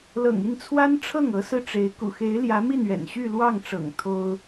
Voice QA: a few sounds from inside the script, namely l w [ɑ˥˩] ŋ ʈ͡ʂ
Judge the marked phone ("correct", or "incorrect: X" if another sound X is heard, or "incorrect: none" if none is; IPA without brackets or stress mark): correct